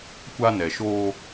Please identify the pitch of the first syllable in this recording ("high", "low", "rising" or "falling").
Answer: high